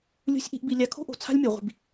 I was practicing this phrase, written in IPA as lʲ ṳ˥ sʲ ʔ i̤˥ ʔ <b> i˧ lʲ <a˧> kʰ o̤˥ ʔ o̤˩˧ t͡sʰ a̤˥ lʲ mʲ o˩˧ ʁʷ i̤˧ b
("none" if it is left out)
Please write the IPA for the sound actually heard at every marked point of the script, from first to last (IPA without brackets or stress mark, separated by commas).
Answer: b, a˧